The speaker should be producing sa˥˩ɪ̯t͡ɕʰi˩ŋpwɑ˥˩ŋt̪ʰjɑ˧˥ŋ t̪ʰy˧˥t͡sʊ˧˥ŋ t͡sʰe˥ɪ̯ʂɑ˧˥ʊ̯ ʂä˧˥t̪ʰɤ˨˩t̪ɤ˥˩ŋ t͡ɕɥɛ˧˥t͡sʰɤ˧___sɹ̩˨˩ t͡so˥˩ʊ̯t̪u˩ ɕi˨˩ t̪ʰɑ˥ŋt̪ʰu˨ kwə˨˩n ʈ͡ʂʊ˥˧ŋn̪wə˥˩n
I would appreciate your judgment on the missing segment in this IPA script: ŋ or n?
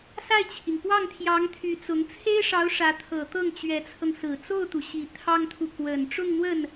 ŋ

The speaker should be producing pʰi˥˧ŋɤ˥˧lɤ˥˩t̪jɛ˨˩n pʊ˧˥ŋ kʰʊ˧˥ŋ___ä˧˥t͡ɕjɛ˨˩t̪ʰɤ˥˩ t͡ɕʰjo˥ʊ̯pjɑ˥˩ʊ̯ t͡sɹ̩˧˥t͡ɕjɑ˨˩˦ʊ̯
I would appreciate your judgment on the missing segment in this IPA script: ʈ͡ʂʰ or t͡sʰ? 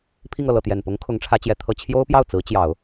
ʈ͡ʂʰ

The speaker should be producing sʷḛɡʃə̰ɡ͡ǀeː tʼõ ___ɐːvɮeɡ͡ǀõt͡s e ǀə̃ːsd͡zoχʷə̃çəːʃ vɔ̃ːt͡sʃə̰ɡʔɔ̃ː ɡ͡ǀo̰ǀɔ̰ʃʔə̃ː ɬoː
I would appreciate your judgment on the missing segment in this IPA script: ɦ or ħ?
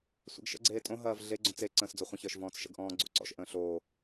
ɦ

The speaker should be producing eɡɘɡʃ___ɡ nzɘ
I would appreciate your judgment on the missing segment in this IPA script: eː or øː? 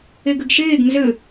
eː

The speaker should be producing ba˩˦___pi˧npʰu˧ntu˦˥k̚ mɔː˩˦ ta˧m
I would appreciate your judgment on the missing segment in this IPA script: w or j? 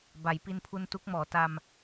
j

